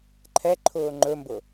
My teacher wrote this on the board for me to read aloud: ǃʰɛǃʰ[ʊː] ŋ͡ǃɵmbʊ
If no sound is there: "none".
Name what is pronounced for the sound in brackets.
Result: ʊː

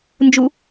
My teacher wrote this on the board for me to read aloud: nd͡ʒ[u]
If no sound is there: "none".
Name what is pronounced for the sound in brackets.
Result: u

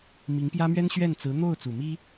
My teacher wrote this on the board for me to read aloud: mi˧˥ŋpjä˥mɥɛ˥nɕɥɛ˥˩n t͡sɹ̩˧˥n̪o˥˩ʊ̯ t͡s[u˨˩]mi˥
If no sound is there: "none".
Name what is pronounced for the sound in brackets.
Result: u˨˩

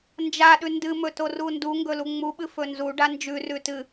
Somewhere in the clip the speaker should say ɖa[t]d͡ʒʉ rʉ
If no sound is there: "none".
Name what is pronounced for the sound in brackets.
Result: n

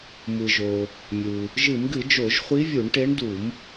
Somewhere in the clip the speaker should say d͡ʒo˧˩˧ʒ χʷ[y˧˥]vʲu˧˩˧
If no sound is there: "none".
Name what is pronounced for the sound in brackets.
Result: i˧˥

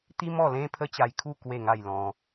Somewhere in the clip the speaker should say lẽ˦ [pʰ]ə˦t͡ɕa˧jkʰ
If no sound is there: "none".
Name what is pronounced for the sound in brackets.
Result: pʰ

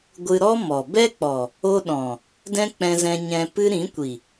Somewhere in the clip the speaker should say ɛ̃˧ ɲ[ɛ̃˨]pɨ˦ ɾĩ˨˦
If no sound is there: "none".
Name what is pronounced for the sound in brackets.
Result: ɛ̃˧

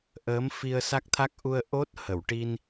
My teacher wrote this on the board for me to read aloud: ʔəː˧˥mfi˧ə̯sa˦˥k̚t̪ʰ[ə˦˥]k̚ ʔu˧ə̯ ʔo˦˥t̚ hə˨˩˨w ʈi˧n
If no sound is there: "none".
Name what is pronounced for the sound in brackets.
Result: a˦˥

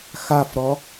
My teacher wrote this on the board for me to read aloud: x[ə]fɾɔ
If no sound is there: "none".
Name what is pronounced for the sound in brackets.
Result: a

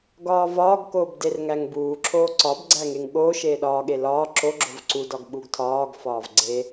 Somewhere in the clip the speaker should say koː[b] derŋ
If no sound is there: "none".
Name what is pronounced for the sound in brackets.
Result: b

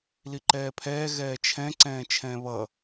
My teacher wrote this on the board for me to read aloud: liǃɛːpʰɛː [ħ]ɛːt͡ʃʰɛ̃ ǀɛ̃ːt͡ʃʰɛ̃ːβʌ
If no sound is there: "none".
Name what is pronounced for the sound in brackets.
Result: ɣ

